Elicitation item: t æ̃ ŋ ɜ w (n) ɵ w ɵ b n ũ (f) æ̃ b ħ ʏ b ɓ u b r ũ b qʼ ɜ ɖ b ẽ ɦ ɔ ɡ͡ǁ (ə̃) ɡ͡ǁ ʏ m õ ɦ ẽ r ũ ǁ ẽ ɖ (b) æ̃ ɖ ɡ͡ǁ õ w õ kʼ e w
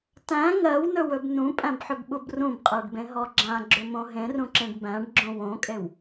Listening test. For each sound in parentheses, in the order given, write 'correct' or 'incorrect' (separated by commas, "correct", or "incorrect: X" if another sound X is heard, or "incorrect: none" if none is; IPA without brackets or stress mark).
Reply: correct, incorrect: pʼ, incorrect: ã, correct